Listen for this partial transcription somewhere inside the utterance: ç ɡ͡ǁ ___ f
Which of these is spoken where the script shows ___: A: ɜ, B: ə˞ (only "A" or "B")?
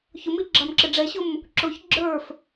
B